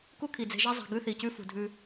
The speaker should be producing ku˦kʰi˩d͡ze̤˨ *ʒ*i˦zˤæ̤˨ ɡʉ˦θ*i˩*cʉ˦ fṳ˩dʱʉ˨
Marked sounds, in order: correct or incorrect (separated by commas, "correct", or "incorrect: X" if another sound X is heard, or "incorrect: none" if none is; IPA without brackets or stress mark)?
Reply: correct, correct